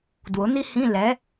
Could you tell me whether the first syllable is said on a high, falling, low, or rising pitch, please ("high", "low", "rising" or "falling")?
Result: rising